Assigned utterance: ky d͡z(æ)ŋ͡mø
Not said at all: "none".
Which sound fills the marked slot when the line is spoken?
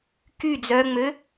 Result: œ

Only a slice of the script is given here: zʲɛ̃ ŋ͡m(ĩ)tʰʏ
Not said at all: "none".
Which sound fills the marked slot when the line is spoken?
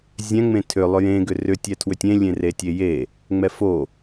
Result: ẽ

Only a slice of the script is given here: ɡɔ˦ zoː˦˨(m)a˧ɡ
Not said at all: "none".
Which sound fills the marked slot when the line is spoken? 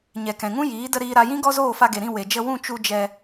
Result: f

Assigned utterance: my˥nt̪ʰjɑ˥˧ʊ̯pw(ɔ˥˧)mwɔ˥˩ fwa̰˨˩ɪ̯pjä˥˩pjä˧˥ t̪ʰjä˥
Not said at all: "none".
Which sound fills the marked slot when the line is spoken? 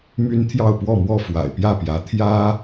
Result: ɔ˥˧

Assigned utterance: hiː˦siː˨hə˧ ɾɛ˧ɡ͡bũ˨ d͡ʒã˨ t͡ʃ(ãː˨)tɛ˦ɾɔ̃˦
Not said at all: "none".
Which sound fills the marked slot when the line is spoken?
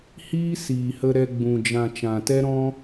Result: ã˨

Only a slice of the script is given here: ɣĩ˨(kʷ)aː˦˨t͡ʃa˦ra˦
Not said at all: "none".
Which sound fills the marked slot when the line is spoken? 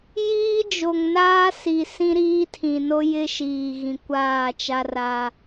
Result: kʷ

